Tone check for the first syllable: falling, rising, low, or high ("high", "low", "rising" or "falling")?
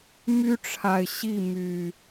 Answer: high